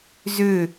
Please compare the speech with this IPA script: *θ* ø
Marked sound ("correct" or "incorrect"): incorrect